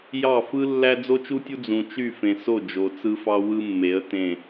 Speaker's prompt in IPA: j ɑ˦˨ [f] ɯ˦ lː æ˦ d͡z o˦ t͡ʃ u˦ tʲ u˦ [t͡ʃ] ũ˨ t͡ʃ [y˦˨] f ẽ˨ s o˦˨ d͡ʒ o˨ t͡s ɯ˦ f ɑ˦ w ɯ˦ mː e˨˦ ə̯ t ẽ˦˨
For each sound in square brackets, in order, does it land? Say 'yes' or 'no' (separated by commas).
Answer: yes, no, yes